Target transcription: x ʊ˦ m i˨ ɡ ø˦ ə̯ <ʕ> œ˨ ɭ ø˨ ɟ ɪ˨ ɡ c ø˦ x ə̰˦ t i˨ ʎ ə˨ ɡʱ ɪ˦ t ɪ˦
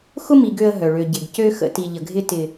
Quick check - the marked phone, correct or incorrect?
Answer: incorrect